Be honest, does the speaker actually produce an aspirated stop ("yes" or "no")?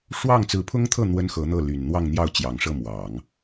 yes